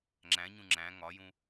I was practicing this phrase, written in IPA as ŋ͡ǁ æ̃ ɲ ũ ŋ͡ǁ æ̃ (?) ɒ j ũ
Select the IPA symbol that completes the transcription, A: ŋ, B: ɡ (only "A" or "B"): A